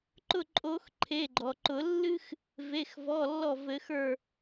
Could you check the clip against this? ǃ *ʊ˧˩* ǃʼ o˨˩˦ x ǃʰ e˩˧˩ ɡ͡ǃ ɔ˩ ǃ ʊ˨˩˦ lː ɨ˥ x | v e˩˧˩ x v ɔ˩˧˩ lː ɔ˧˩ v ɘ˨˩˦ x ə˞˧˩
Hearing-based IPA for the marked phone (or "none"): ʊ˧˩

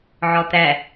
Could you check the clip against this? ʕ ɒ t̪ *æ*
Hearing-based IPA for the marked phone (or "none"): æ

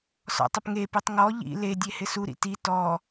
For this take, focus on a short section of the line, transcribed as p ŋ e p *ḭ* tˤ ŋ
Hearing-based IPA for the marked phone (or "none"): i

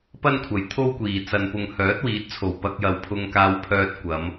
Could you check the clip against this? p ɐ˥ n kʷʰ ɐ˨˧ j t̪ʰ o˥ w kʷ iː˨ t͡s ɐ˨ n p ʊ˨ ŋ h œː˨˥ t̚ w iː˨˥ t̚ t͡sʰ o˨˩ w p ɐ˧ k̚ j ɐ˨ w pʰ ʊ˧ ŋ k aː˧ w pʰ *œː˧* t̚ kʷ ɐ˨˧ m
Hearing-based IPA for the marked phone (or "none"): œː˧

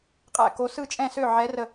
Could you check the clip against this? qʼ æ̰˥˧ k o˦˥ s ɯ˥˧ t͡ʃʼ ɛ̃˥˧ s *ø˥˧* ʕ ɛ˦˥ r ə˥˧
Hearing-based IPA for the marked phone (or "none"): ø˥˧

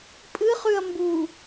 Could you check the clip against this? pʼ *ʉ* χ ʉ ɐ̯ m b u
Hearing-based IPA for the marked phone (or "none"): ɨ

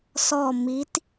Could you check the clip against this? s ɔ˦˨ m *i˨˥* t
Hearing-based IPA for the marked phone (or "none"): i˨˥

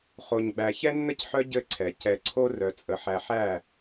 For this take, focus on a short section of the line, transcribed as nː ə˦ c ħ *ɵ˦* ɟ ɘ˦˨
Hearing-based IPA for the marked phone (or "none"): œ˦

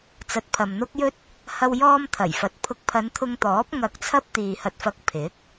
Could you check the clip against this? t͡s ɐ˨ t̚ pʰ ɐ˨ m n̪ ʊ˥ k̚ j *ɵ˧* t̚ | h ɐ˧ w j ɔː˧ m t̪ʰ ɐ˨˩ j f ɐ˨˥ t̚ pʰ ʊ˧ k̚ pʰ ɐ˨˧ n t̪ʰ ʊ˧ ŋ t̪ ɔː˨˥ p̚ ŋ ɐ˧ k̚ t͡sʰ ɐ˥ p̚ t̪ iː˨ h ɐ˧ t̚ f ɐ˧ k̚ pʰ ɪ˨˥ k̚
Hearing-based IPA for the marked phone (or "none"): ɵ˥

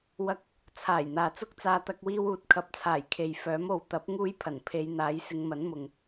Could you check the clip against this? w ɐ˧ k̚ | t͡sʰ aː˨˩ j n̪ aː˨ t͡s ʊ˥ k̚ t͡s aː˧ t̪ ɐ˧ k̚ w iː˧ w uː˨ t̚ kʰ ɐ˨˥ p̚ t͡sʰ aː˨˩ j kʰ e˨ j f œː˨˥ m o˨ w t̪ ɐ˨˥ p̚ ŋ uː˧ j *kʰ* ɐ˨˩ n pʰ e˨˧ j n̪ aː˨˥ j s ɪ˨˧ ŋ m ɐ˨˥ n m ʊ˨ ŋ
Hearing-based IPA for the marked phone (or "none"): pʰ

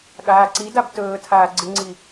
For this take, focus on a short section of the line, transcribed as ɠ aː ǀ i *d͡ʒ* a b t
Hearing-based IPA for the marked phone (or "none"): d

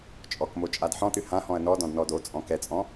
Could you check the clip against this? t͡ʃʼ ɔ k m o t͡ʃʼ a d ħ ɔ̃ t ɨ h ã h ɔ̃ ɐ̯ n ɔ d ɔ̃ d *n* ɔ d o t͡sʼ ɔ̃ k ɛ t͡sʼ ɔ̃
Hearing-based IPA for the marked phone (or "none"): n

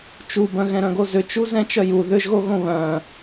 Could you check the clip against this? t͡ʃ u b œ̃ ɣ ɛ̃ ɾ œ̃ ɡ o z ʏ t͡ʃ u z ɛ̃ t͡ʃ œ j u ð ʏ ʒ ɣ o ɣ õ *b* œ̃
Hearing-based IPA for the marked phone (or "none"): β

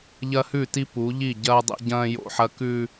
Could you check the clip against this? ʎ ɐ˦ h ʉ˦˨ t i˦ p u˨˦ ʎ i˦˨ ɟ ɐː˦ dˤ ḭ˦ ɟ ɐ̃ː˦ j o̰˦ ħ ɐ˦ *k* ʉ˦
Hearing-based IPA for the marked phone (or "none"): k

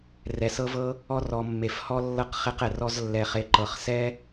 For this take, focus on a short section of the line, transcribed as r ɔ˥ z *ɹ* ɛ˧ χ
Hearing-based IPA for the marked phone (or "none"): lː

